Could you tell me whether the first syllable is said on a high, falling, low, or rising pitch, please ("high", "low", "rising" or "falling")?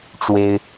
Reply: high